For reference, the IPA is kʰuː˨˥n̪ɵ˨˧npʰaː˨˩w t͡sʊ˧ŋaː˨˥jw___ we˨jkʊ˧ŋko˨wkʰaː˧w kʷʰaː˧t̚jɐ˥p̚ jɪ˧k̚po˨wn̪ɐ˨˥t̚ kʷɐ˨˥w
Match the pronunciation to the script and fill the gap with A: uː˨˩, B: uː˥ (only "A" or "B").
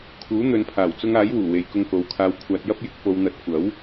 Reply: A